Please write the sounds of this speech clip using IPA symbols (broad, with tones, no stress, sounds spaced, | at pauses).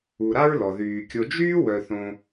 u˨ ɾ a˥ ɹ l ɔ˩ ð yː˩ kʲ o˨ d͡ʒ yː˥ w œ˨ θ õ˨